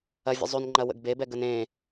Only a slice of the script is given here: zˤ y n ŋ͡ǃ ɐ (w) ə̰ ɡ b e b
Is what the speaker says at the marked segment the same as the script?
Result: yes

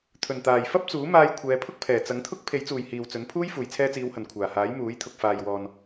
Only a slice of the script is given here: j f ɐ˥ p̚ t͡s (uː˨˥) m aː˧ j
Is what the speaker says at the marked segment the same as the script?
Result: yes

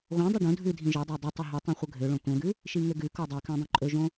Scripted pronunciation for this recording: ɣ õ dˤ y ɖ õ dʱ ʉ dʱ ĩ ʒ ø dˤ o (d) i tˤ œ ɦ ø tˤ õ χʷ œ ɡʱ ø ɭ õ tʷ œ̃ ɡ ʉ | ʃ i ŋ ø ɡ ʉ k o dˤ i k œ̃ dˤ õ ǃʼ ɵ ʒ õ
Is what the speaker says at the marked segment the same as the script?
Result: no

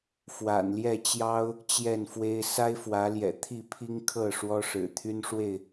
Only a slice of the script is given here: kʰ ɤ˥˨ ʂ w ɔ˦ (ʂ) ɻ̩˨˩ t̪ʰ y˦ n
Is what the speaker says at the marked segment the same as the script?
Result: yes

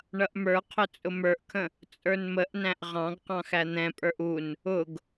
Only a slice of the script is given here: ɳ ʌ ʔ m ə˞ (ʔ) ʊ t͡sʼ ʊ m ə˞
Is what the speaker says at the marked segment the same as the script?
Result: no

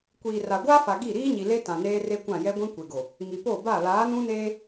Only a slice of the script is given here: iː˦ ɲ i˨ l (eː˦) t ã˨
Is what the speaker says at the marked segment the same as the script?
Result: no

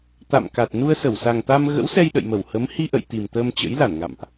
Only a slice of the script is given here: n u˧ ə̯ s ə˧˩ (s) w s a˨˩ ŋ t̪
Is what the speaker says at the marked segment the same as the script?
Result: no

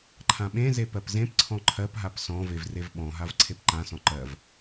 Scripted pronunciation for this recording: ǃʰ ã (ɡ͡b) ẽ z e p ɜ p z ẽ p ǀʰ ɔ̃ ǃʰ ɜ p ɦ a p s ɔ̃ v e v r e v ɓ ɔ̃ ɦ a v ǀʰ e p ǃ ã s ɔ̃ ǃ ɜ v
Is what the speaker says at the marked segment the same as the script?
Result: no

